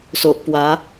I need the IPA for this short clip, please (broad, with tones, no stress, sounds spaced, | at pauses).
s o˨ ʔ p w a˨˦